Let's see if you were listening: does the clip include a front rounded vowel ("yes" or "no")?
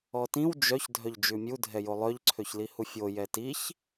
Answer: yes